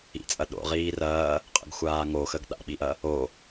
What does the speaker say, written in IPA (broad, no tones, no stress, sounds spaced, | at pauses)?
ḭ t͡sʼ ɐ ɗ o̰ ʁ iː r ɐː | qʼ ə̰ ɡ xʷ aː ŋ o x ə ɡ ɗ a̰ ɓ i ʔ ɐ | o